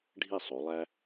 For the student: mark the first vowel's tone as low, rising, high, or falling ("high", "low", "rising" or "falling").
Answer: falling